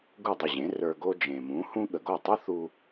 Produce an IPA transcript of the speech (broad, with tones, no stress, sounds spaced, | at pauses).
ɡ u˥˩ dˤ ə˥˩ ʑ ẽ˩˥ r ə˞˧ ɡ o˥ d͡ʒ ẽ˩ m ũ˩˥ h ũ˥ ɠ ə˩ ɡ o˥˩ tˤ u˥ θ u˧